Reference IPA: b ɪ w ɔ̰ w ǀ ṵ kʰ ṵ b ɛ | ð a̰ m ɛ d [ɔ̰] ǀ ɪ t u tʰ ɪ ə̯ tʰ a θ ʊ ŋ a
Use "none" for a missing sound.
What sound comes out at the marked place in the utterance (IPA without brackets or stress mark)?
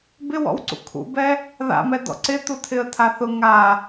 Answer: ɔ̰